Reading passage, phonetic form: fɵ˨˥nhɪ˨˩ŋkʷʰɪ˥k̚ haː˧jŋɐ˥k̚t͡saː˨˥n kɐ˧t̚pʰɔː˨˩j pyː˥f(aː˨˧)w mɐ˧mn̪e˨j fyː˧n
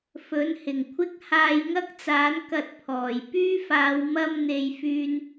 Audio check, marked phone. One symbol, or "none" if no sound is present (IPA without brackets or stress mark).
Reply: aː˨˧